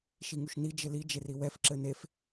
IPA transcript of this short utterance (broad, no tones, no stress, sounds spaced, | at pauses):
ʃ i ŋ u ʃ n i d͡ʒ ɘ l i d͡ʒ e r i w ɛ f ǁ ɘ n e f